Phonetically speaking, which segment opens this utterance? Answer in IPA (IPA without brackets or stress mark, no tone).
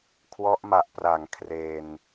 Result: kʰ